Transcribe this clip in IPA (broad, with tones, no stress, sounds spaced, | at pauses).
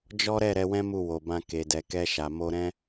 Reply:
d͡ʒ ɔ˦ ɾ ɛ˦˨ ɾ ɛ˧ w ɛ̃˦ m u˦˨ w o˨ b ã˧ k e˨ d ɛ˨ k ɛ˧ ʃ a˨ m o˧ ɾ ɛ̃˧